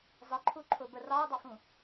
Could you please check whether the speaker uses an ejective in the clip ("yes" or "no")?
no